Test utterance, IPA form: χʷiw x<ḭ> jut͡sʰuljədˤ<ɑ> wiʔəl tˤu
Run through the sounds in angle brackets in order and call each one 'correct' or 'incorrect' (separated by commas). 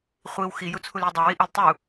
incorrect, correct